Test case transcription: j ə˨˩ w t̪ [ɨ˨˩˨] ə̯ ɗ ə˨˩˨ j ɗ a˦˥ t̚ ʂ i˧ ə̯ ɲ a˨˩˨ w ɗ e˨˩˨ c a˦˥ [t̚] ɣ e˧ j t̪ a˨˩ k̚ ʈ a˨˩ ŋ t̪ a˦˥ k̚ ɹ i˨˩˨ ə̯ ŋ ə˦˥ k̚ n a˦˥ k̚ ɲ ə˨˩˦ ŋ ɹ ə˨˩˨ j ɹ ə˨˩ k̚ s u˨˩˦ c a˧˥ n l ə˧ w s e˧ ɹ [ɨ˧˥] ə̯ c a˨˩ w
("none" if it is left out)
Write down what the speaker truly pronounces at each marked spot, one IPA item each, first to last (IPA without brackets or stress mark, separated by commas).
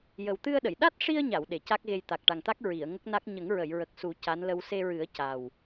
ɨ˧, k̚, ɨ˨˩˦